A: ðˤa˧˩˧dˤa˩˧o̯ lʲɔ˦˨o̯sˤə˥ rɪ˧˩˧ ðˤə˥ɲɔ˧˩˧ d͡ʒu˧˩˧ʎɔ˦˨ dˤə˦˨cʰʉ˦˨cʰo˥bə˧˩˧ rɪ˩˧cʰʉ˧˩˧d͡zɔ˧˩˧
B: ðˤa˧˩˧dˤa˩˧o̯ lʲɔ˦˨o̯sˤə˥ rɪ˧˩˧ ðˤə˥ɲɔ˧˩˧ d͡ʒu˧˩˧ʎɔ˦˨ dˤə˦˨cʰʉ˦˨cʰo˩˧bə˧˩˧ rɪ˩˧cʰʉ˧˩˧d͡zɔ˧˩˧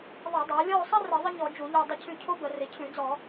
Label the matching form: A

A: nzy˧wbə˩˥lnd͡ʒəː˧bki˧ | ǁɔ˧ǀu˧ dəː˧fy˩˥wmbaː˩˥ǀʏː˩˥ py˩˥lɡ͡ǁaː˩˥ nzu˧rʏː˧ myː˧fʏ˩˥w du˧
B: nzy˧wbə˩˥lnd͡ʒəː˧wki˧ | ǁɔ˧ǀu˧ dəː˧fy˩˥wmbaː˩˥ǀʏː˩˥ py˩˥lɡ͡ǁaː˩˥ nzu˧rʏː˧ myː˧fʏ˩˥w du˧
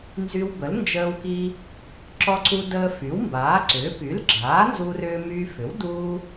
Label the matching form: B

